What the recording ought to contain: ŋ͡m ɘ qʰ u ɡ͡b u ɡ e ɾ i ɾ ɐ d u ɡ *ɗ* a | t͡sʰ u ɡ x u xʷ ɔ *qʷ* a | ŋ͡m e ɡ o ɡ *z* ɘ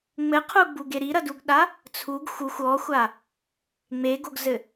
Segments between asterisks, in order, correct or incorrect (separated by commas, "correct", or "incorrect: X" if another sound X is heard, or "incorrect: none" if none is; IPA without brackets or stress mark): correct, incorrect: xʷ, correct